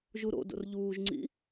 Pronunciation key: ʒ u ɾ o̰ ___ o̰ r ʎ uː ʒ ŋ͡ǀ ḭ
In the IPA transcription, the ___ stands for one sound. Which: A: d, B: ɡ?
A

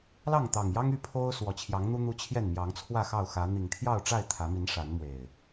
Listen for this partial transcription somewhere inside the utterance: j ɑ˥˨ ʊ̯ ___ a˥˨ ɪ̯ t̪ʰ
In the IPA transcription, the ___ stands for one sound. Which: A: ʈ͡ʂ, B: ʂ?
A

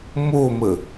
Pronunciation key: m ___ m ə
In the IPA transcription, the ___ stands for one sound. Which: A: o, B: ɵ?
A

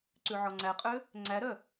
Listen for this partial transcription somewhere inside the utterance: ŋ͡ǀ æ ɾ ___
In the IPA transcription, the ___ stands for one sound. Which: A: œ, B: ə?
A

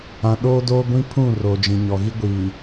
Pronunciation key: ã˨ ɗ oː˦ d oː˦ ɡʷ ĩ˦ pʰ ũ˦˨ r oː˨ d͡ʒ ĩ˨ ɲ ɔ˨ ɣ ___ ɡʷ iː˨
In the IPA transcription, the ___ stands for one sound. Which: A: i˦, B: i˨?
A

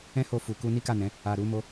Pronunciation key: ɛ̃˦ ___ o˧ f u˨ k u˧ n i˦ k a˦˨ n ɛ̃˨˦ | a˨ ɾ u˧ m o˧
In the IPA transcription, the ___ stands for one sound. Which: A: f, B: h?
B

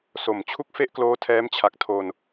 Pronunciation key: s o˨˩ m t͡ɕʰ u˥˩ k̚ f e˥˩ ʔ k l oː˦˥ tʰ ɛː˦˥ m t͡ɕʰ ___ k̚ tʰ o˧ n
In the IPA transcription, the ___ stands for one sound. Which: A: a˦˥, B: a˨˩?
B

